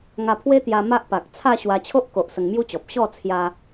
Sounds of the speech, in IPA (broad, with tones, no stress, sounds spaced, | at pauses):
ŋ a˧ pʰ w e˦ t̪ j a˧ m a˦ ʔ p a˨ k̚ t͡sʰ a˥˧ ɕ w a˧ t͡ɕʰ o˦ ʔ k o˨ ʔ s ə˧ ŋ m j u˦ t͡ɕ ɔ˨ p̚ ɕ ɔ˥˧ t͡sʰ j a˧